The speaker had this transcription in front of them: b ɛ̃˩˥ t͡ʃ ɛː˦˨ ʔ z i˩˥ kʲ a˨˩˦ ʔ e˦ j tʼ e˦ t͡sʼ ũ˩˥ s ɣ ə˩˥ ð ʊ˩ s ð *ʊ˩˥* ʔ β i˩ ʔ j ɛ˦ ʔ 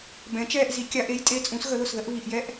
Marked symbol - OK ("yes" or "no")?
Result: no